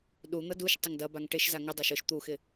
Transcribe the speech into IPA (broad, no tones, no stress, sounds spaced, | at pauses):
ɗ u n̪ ɐ d u ʃ tˤ ɪ ŋ d ɐ b a ŋ ʈ ɪ ʃ z a ŋ ʊ dˤ a ʃ ʊ ʃ t̪ u x ɪ